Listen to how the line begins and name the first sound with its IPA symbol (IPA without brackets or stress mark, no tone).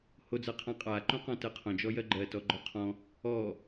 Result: h